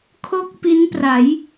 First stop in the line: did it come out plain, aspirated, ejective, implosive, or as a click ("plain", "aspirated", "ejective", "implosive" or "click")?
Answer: aspirated